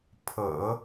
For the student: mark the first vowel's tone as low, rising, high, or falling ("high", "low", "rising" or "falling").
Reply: low